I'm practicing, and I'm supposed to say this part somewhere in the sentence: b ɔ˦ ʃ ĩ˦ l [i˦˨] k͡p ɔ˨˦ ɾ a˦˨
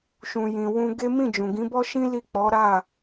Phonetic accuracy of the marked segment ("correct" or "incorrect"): correct